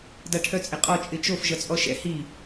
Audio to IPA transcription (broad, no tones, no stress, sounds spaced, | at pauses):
d a ʈʰ œ t͡sʼ ɪ qʼ ɔ t͡ʃʼ ɪ t͡ʃ o f ʒ ʌ t͡sʼ ɔ ʃ ɛ̰ h i